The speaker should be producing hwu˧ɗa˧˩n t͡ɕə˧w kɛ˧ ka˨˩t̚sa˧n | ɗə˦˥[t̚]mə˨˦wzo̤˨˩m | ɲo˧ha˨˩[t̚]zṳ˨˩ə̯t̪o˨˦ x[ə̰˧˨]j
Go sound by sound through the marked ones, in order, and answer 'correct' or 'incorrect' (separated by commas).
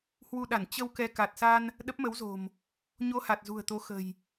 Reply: incorrect, correct, incorrect